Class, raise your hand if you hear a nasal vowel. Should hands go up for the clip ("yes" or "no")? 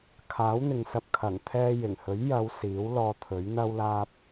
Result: no